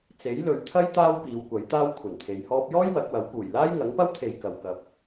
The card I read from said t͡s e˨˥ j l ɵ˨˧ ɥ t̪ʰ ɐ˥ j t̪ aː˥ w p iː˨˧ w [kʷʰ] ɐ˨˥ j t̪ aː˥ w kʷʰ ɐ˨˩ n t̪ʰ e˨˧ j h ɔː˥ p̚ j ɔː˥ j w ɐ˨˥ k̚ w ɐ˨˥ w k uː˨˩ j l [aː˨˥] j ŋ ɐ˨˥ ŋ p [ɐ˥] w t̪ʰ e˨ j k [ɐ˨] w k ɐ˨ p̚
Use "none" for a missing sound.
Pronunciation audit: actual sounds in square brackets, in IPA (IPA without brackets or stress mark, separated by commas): kʷ, aː˥, ɐ˥, ɐ˨